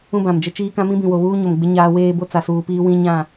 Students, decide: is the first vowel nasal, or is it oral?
nasal